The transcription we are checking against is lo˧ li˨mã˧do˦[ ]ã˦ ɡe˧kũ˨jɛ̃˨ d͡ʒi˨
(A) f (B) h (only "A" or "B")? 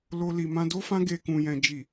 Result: A